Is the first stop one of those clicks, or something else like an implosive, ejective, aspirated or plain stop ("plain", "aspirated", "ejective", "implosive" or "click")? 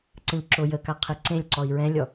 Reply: click